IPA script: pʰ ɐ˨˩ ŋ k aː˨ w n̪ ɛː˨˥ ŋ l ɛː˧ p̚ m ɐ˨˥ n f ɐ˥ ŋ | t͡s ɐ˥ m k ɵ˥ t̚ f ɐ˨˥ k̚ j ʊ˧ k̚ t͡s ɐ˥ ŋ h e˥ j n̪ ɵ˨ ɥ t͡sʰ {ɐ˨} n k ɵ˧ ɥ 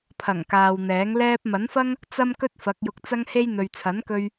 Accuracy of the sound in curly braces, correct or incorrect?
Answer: incorrect